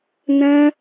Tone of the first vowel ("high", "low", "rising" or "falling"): high